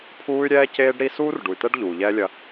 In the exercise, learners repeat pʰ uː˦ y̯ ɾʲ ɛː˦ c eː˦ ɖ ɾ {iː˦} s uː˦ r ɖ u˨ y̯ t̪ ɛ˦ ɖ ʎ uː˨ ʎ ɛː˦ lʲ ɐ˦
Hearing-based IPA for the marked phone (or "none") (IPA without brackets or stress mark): i˦